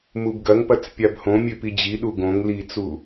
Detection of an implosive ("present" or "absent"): present